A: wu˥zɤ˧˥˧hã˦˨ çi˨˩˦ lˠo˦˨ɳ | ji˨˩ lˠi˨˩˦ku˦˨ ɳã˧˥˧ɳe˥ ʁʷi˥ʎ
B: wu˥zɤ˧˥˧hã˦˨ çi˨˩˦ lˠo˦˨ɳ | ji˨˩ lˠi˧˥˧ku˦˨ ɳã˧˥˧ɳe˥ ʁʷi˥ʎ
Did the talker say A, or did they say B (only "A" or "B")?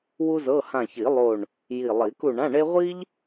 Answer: A